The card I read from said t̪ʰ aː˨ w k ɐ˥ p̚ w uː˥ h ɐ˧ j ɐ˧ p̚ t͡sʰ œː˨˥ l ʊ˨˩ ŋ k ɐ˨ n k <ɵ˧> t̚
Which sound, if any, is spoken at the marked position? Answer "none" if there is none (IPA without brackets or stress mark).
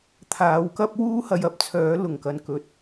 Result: ɵ˨˥